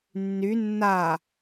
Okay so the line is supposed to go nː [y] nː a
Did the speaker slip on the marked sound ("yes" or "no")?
no